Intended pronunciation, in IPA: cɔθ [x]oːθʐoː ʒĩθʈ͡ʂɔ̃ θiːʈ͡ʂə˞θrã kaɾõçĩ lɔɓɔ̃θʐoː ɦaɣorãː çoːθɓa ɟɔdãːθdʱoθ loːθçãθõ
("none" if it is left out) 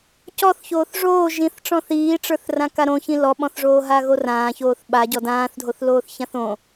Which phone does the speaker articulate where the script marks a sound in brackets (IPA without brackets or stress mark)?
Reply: ç